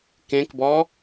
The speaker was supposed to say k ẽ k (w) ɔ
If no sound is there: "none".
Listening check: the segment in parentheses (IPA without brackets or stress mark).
b